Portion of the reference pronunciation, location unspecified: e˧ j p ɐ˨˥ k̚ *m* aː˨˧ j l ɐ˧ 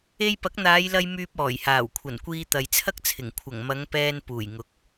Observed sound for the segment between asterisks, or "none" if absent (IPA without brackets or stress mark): n̪